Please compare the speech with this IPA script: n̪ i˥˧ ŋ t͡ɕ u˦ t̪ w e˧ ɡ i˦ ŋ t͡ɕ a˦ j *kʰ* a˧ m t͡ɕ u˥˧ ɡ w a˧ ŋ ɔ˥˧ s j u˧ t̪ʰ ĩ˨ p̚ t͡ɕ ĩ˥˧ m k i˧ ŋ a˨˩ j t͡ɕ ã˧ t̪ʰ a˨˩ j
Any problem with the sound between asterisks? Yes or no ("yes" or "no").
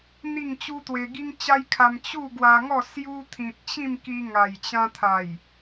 no